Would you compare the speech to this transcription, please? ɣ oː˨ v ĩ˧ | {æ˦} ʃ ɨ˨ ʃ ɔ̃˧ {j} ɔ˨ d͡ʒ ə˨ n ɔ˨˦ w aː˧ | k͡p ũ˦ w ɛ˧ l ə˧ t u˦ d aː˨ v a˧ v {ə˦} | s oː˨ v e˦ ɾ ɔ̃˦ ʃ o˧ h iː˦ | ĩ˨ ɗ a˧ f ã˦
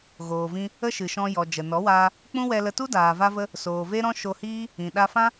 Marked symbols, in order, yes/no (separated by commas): no, yes, no